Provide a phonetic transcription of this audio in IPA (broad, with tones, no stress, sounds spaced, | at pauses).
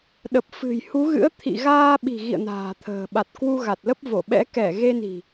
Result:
ɗ ə˨˩ p̚ f ɨ̤˨˩ j h u˨˦ ɣ ɨ̰˧˥ ə̯ t̪ʰ ḭ˧˨ ɣ aː˧ ɓ i̤˨˩ ɣ ḭ˧˨ ə̯ n a̤ː˨˩ t̪ʰ ə̤ː˨˩ ɓ a˨˩ t̚ k w u˧ ɣ a˨˩ t̚ l ə˦˥ p̚ v o˧˩ ɓ ɛ̰˧˥ k ɛ˧˩ ɣ e˧ n i̤˨˩